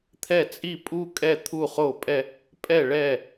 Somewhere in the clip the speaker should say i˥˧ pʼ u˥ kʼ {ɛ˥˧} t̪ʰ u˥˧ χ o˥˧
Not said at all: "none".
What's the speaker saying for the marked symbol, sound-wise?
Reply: ɛ˥˧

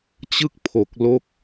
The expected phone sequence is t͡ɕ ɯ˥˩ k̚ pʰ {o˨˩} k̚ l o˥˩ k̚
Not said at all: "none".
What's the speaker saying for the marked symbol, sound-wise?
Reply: o˨˩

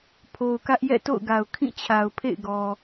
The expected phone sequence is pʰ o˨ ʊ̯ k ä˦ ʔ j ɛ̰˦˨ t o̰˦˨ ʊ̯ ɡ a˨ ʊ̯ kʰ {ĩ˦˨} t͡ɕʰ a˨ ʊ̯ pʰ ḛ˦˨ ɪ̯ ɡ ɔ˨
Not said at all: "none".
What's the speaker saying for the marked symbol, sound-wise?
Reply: ĩ˦˨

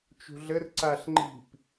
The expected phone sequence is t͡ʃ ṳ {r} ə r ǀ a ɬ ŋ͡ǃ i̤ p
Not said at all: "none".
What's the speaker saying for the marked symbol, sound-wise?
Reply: ɮ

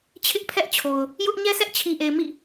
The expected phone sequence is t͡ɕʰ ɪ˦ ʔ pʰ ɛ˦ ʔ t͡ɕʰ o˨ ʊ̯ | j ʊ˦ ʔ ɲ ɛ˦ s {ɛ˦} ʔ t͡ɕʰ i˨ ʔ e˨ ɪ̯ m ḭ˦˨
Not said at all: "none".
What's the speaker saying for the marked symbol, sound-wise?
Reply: ɛ˦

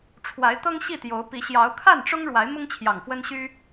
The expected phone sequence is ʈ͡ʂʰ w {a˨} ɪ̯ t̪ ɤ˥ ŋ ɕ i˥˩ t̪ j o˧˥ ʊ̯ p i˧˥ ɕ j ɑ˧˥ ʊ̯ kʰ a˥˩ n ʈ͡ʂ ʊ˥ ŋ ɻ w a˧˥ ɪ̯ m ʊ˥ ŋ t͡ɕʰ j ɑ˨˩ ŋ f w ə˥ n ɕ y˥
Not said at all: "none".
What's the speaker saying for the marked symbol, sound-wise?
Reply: a˧˥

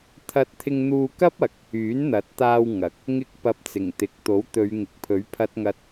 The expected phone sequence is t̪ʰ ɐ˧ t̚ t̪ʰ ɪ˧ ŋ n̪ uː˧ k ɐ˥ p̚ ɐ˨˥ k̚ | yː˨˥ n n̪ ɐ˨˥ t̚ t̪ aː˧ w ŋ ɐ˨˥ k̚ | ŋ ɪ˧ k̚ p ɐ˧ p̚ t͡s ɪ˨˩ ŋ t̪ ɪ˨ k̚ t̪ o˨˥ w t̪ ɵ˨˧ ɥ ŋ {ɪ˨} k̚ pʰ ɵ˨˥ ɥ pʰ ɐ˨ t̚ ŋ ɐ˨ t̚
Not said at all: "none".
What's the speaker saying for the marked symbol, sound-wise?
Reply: ɪ˨˥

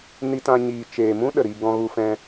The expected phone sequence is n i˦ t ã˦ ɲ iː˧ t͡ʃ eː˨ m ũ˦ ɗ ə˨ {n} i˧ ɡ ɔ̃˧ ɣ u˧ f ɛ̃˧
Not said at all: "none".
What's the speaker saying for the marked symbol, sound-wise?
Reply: ɾ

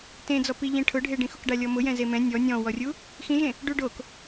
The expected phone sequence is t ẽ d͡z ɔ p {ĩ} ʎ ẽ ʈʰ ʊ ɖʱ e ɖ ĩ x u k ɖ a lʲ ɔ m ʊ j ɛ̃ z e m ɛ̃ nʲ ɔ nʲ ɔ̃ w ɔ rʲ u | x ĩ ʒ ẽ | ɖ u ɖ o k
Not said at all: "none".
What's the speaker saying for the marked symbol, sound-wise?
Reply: i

